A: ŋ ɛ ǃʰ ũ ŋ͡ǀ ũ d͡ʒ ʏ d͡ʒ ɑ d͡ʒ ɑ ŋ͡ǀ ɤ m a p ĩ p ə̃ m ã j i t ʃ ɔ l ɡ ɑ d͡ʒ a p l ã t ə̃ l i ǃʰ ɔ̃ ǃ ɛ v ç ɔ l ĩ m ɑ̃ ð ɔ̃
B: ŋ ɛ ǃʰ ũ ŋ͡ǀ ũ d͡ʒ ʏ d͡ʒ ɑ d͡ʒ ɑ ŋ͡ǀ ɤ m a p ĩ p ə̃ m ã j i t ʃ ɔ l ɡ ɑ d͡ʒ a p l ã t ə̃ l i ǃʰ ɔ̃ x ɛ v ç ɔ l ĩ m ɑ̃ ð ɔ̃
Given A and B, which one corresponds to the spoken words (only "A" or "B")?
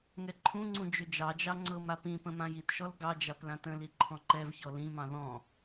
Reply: A